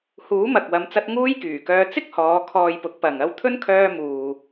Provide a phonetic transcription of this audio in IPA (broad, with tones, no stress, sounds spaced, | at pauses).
h uː˨˥ m ɐ˨ k̚ w ɐ˨˧ m t͡s ɐ˧ t̚ ŋ uː˥ j k yː˨˩ k œː˧ t͡s ɪ˥ k̚ h ɔː˨˧ kʰ ɔː˧ j p ʊ˨˥ k̚ p ɐ˨ ŋ ɐ˧ w t̪ʰ ɵ˥ n kʰ œː˧ m uː˨